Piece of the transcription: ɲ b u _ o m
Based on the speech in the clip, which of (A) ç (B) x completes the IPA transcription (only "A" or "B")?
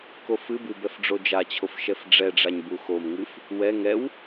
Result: B